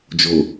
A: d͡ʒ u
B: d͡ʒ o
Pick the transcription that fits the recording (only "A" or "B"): B